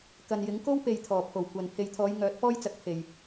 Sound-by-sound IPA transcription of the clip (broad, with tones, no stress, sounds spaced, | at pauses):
k ɐ˨ n j ɪ˨˥ ŋ k o˥ w p e˨ j t̪ʰ ɔː˨˩ pʰ o˨˩ w kʷ ɐ˨ n pʰ e˨ j t̪ʰ ɔː˨˧ j ŋ œː˨˥ t̚ p ɔː˥ j t͡s ɐ˨˥ k̚ pʰ e˨ j